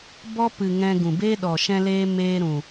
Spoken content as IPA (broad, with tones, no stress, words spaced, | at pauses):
bɔ˦ pɨ˨ ŋɛ̃˧ ɡũ˨beː˦ɗɔ˨ ʃɛ̃˧leː˧ meː˧ɾũ˨